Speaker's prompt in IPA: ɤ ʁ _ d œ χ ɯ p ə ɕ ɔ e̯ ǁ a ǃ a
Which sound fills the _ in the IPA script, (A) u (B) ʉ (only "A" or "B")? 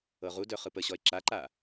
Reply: A